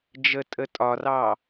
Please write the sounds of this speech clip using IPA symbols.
d͡ʒ ə tʼ ə tʼ ɒ r ɑ

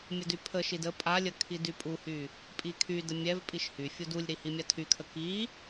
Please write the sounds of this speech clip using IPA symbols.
mʲ ə d y pʰ ə ʃ i d ə pʼ a lʲ ə kʰ i d y pʼ u h y | pʼ i kʰ y d ə mʲ ɛ v pʼ i ʃ h y fʲ u d u lʲ ɾ i h i mʲ a tʰ y kʰ ə k i

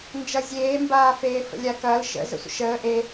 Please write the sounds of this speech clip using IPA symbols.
n d͡ʒ ʌ zʲ eː m b aː f eː f ə̰ lʲ a k ɐː l ʃ ə̰ z ə̰ sʷ ə̰ ʃ əː ʔ e

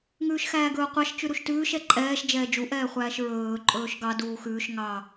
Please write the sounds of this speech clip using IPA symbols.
ŋ ʉː ʃ x æː ɡ ɵː qʷ ɑ ʃ t͡ʃ ʉ ɾ u ʃ t ʉː ʃ ɛ ǃʼ ɛː ʃ d͡ʒ ɛː d͡ʒ u ʔ ɛː χʷ æː ʃ ɹ ɵː ǃʼ ɵː ʃ ɡ ɑ d uː x ʉː ʃ ŋ ɑ

